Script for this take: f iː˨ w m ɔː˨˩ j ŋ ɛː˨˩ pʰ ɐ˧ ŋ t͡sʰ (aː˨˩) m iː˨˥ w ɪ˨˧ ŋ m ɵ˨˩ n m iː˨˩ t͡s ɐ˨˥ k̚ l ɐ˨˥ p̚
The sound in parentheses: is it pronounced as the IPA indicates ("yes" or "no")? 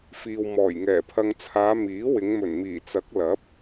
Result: no